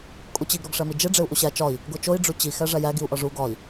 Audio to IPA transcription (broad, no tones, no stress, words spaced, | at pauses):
kʼut͡ɕiɡ ɾoɡʂæmid͡ʒe ɖ͡ʐeu̯ʔuɕæ t͡ʃɒi̯ | ɡot͡ʃoi̯ ɖ͡ʐut͡ɕi xæʐæjæɡ iu̯ʔɒʐu ɡɒi̯